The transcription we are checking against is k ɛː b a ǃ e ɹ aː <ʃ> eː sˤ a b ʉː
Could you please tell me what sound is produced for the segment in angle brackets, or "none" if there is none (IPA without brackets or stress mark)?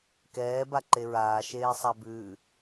ʃ